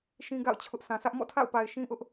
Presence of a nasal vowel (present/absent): present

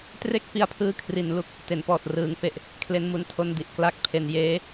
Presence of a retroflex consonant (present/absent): absent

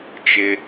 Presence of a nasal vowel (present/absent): absent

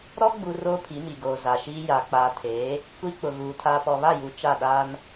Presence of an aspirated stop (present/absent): present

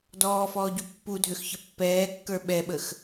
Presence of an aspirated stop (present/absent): absent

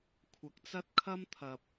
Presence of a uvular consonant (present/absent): absent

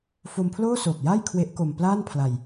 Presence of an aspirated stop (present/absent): present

